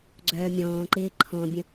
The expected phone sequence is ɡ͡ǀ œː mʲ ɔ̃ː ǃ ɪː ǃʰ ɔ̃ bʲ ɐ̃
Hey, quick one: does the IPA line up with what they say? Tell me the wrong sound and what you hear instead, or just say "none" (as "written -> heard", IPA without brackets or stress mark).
ɐ̃ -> ə̃